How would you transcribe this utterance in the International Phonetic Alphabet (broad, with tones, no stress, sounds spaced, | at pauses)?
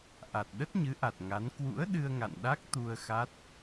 ʔ a˨˩ t̚ ɗ ə˦˥ t̚ ɲ ɨ˨˦ ʔ a˨˩ t̚ ŋ a˨˦ n k w ṵ˧˥ ə̯ ɗ ɨ˧ ə̯ ŋ a̰˧˨ n ɗ a˦˥ k̚ t̪ u˧ ə̯ x a˦˥ t̚